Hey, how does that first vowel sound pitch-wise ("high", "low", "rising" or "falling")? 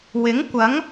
rising